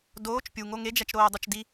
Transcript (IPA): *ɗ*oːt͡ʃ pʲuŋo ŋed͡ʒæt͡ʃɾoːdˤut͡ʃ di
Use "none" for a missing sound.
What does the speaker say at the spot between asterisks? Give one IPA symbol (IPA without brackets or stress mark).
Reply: d